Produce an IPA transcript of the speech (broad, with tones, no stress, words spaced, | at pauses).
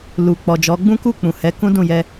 lu˨ k͡pɔ˨d͡ʒɔ˨˦ ɡ͡bũ˦ku˦˨k͡pũ˨ hɛ˨˦kũ˦dũ˦˨jɛ˧